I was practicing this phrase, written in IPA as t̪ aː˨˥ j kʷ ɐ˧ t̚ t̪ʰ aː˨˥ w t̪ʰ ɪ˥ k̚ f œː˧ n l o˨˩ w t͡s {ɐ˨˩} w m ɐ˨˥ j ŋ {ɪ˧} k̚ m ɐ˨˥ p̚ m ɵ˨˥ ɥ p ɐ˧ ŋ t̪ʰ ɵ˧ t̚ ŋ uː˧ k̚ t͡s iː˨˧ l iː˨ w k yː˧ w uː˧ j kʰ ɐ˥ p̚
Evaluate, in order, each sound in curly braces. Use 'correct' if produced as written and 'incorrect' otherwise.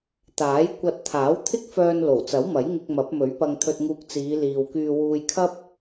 incorrect: ɐ˨˥, correct

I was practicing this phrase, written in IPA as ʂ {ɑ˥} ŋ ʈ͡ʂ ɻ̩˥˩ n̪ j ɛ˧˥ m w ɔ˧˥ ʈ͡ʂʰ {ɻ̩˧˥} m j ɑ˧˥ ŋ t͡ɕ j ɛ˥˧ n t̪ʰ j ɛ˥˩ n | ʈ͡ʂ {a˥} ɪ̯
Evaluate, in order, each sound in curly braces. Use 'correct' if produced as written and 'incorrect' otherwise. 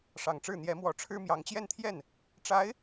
incorrect: ɑ˨˩, incorrect: ɻ̩˥, incorrect: a˧˥

